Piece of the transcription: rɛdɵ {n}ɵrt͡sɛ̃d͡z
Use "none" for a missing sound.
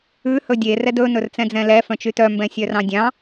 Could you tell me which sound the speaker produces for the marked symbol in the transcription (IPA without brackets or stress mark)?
n